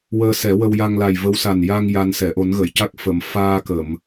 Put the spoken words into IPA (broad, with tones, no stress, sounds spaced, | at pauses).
w əː˧ s ɛ˨˩˦ w ə˧ w j a˧ ŋ l a˨˩ j v ə˧˥ w s a˨˩ n j a˧ ŋ j a˧ n s ɛ˨˩˨ ʔ o˨˩˦ n ɣ ə˨˩˨ j c a˦˥ k̚ f ə˨˩˨ m f aː˧ k ə˨˩˨ m